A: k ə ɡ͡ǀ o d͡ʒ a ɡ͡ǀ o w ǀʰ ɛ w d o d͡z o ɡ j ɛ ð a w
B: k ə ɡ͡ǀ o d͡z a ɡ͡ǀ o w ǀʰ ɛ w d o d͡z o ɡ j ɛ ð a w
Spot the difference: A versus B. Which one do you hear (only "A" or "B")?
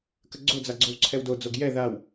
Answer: B